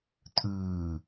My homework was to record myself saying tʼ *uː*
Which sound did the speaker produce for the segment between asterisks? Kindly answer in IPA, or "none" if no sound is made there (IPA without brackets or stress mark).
ʉː